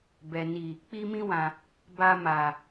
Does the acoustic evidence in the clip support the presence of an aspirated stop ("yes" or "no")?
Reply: no